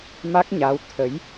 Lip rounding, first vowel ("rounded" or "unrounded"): unrounded